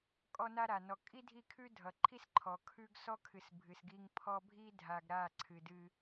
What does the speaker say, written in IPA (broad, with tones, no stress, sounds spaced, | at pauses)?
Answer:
kʼ ɔ˦ n a˦ ɾ a˨ n ɔ˨ kʼ i˦ dʱ i˦˨ kʰ ʉ˦ dʱ ʌ˨ ǃʰ i˦ s ǃʰ ɔ˨ kʰ ʉ˦ ɡ s ɔ˦ kʰ ɨ˨ s bʱ ɨ˨ s ɡ i˦ ŋ pʰ ɔ˦ bʱ i˦ dʱ a˨ ɡ ɾ a˦˨ ǀʰ ɨ˨ d ɨ˦